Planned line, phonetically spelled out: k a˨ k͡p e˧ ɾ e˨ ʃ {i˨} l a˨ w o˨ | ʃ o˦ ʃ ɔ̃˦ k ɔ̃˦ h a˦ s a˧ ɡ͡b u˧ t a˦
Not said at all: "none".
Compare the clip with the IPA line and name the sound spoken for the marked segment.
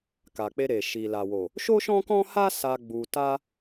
i˨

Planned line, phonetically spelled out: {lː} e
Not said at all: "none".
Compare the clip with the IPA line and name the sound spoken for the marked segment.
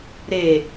ɾ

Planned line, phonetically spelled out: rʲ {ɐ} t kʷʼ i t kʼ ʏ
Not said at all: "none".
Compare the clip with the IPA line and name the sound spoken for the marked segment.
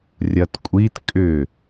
ɐ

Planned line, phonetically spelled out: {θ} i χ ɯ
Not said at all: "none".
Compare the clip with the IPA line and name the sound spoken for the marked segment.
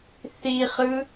θ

